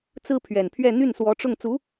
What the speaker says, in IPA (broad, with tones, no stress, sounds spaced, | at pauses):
t͡s ɹ̩˥ pʰ ɥ ɛ˨˩ n pʰ ɥ ɛ˥˧ n̪ y˥˩ n s w ɔ˧˥ ʈ͡ʂ ʊ˥˩ ŋ t͡s u˧˥